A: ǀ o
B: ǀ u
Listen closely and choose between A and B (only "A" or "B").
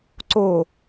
A